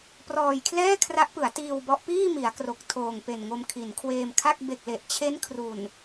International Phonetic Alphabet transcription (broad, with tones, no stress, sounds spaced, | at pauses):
p r ɔː˧ j kʰ l ɛː˥˩ kʰ r a˦˥ ʔ p ɯ˩˦ a̯ t iː˧ w b ɔ˦˥ ʔ p iː˥˩ m i˩˦ a̯ k r o˨˩ k̚ tʰ oː˨˩ ŋ p e˨˩ n ŋ o˧ m kʰ i˩˦ n kʰ w eː˧ m kʰ a˥˩ k̚ b e˨˩ k̚ l e˨˩ ʔ t͡ɕʰ e˦˥ n kʰ r u˨˩ n